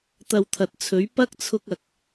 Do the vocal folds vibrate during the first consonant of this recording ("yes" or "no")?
no